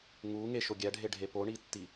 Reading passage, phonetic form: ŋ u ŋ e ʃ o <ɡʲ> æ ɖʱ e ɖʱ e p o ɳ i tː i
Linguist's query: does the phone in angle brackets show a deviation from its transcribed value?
no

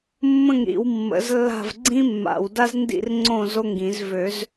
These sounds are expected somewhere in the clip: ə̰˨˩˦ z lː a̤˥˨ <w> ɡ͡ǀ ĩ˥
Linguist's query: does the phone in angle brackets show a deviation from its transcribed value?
yes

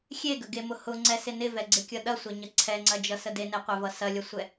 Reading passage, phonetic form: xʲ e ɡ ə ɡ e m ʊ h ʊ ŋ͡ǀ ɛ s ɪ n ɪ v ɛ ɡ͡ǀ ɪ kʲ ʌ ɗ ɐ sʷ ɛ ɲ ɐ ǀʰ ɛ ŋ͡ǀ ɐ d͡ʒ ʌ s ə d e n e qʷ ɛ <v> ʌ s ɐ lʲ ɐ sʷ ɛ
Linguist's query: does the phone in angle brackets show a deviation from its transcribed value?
no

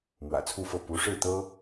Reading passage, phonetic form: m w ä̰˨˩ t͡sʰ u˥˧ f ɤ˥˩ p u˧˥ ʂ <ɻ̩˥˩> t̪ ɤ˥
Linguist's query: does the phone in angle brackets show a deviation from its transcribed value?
no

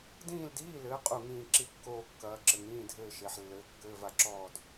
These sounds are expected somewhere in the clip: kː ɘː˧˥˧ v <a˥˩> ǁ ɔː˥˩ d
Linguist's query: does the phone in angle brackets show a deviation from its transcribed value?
no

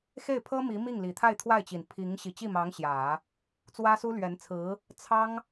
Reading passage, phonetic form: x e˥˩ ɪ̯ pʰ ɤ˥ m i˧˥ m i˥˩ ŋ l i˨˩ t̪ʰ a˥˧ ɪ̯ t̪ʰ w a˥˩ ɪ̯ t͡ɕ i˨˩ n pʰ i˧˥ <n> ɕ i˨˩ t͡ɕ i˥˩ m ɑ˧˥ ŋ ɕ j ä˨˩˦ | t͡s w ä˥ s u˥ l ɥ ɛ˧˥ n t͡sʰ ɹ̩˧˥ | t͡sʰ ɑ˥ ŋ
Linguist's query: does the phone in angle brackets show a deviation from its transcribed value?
yes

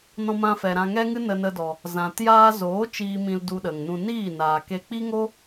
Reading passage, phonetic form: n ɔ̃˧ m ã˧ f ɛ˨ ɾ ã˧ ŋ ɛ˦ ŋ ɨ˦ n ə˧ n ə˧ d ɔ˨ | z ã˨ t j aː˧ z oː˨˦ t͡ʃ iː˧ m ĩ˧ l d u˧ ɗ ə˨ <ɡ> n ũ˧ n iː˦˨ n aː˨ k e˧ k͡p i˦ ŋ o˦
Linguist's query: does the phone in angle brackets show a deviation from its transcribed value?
yes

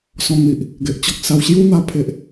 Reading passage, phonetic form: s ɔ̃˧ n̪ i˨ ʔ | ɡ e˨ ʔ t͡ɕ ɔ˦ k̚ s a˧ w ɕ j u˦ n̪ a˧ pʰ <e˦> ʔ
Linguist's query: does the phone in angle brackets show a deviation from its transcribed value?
no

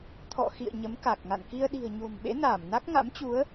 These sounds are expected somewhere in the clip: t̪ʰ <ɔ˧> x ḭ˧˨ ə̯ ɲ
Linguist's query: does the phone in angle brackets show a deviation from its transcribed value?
yes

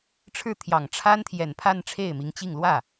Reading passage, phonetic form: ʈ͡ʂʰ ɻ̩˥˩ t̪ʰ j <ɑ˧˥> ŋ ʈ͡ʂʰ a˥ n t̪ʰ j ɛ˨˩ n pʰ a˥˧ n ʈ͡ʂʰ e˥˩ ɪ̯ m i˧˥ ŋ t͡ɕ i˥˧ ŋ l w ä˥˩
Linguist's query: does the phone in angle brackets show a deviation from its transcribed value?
yes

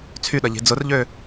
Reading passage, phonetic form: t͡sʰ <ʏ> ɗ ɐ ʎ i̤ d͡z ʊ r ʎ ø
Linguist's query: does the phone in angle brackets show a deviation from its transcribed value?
yes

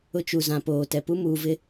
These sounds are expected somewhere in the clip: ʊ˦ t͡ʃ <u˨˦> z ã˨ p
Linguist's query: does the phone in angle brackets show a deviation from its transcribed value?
yes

